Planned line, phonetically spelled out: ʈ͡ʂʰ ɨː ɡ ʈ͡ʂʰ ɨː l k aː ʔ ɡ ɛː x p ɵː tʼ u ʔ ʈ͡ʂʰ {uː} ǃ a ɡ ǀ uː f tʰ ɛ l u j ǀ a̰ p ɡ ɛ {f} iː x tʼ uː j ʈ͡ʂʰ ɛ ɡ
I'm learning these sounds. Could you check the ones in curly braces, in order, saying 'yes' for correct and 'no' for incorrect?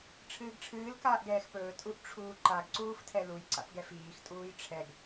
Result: yes, yes

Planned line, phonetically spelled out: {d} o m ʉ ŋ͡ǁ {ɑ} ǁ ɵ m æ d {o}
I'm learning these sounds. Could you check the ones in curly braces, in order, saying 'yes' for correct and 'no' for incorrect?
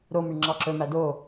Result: no, yes, yes

